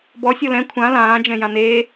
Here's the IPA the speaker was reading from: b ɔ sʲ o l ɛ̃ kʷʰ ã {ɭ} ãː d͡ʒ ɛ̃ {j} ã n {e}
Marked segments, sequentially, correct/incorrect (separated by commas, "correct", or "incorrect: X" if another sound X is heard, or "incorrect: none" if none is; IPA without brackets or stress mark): incorrect: l, correct, incorrect: eː